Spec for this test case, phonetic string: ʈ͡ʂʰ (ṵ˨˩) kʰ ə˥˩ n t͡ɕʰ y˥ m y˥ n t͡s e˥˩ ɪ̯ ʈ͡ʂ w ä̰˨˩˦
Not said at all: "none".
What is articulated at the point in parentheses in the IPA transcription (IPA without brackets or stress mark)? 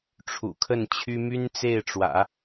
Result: ṵ˨˩